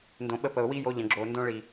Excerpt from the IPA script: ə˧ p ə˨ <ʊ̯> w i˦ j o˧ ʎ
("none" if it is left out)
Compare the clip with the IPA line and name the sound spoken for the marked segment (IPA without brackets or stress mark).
ʊ̯